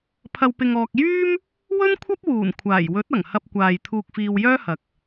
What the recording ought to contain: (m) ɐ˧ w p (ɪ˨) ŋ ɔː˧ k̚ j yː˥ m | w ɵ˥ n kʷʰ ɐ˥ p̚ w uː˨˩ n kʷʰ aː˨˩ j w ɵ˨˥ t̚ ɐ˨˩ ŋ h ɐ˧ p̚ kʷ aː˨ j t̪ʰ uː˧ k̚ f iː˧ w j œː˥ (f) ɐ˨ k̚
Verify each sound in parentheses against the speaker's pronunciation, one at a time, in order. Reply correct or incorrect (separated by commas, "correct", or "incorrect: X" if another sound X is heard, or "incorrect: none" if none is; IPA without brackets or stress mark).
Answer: incorrect: pʰ, incorrect: ɪ˧, incorrect: h